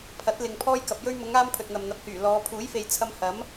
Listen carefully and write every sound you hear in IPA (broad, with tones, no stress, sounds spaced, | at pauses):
pʰ ɐ˨˥ t̚ l ɪ˨ ŋ pʰ ɔː˥ j k ɐ˧ p̚ j ɵ˥ ɥ m ʊ˨˧ ŋ aː˧ m pʰ ɵ˨ t̚ n̪ ɐ˨ m n̪ ɐ˨ p̚ h yː˨˩ l ɔː˨˧ pʰ uː˨˥ j f e˨ j t͡sʰ ɐ˧ m h ɐ˨˥ m